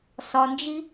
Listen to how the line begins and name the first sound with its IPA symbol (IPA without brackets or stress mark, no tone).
s